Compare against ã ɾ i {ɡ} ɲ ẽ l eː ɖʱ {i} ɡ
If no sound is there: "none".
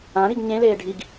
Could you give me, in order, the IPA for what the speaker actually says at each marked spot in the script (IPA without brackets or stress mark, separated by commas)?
ɡ, i